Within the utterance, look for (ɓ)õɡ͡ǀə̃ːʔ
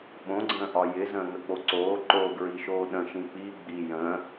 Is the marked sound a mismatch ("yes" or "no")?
no